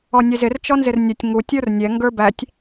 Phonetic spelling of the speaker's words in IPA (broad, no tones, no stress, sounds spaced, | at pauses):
ɔ nʲ ɛ z ɪ r t͡ʃ ɔ n z ɪ r nʲ ə tʲ ŋ u tʲ ə˞ r nʲ ɛ ŋ ɡ ə˞ b æ tʲ